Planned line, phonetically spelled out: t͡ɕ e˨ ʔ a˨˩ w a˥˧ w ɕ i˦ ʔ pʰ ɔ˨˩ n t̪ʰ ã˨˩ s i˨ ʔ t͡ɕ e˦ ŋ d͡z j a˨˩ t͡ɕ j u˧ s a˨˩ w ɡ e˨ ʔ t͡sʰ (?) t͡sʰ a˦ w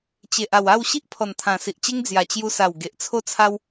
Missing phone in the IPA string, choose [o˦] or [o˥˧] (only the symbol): o˦